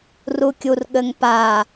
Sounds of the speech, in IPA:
r u kʲ u r ɠ ɘ ŋ p a

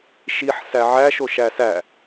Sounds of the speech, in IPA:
ʃ i ħ s æ ʕ æ ʃ o ʃ æ s æ

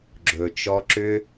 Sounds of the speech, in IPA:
ɡ͡ǁ ɵ˨ t͡ʃ ɔ˧ ǁ ʏ˦

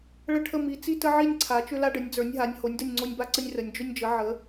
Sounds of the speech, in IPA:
ɭ ə˥˧ ʈʰ ə˥˧ m i˨˥ t͡s i˥ t ə˥ ʕ i˥˧ nʲ ǀʰ a˨˥ t͡ʃ ʏ˥ l a˥ ɖ ə˨˥ nʲ d͡z ə˞˨˥ nʲ ɦ a˨˥ nʲ h o˨˥ nʲ d ə˥˧ nʲ ŋ͡ǀ o˥ nʲ b a˥ ǀ ə˥ nʲ r ə˨˥ nʲ d͡ʒ ʏ˥ nʲ d͡ʒ ə˨˥ ʕ ə˨˥

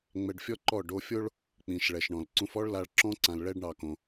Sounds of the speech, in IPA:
ŋ͡m ɛ˧ ɖ fʲ ɔ˦ ǃ ɔ˦˨ ɖ o˧ fʲ o˦ ɭ | k͡p ĩ˨ ʃ ɭ ɛ˨ ʃ ɳ ɔ̃˨ l ǀ ũ˧ f ɔ˦ ɭ l a˧ ɭ ǁ ɔ̃˦ ǀ ã˧ l ɭ ɛ˦ ɖ ɳ ɑ˧ k õ˧

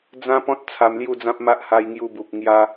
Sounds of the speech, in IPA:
d͡z ã˦ p ɔ̃˦ t̚ t͡sʰ a˧ m l j u˥˧ d͡z ã˦ p̚ m a˦ ʔ h a˧ j ŋ j u˧ b u˨ p̚ ŋ j a˧

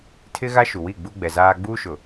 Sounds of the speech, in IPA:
tʰ ɪ˦ ɣ a˦ ʃ u˨ w i˦˨ ɡ͡b u˦ ɡ͡b ɛ˨ z aː˦ ɡ͡b uː˦ ʃ ʊ˨

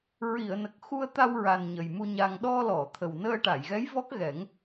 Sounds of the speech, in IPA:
ɹ i˨˩˨ ə̯ n ə˨˩ k̚ x u˧ ə̯ t̪ a˧ w ɹ a˨˩ n ɲ ə˨˩ j m u˧ ɲ a˧ ŋ ɗ ɔ˧ l ɔ˨˩˨ t̪ʰ ə˨˩ w n əː˧ ʈ a˨˩˨ j ɣ ɛ˧˥ j v ɔ˦˥ k̚ ɣ ɛ˨˩˦ ŋ

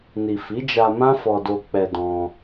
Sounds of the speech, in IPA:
n i˨ f i˨˦ d͡ʒ a˧ m ã˦ f ɔ˧ d o˧ k͡p ɛ˧ d ɔ̃˧

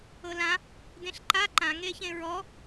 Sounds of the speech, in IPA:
ɤ l ã | d ẽ ɬ ǃ a ǃ ã ŋ e ç ẽ ɹ ɔ

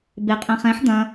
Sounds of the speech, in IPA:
b e qʼ ɛ̃ χ ɛ̃ ħ d̪ ɐ̃

